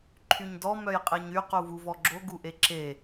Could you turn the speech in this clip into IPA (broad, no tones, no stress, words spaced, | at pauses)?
ǃʰyɲdɔ mœjqʼeɲy quvuvɔɡ͡ǁo ɡuʔeǁe